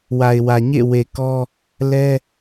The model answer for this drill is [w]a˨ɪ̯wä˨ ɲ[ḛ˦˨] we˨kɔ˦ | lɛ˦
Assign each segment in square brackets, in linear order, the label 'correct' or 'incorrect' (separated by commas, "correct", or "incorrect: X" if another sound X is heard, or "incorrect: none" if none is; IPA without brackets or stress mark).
correct, correct